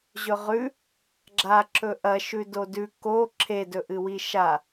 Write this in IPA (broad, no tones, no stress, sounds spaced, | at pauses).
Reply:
ʑ ɵ ʁ ʉ | ɡ͡ǁ a ǁ ɵ ʔ ɐ ʃ ʉ d o d ʉ k o ǁʰ e d ɵ ʔ ɨ w i ʃ a